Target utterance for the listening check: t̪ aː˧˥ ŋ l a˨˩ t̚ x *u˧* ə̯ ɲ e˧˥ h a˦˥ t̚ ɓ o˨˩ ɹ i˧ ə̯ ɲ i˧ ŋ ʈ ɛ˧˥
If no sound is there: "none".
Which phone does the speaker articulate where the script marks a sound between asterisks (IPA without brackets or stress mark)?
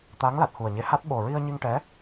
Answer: u˨˩